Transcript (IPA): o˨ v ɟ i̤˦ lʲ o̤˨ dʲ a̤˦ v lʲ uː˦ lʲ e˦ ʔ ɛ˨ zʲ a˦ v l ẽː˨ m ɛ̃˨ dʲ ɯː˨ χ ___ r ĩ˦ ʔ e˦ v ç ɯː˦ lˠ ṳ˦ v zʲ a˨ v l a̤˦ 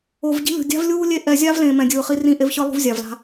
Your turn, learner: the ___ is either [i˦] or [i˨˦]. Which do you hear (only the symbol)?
i˦